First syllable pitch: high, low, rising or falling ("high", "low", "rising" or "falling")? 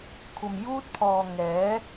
low